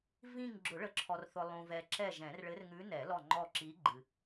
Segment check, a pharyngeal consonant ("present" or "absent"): absent